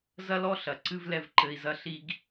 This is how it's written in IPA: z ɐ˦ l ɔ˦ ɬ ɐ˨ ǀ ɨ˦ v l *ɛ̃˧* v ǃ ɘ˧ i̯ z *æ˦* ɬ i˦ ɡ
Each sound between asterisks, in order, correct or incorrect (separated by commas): incorrect, incorrect